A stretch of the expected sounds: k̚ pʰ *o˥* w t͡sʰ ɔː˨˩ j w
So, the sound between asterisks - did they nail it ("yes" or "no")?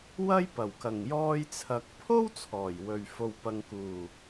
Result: yes